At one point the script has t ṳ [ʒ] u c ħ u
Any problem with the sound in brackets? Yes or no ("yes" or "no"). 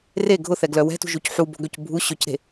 no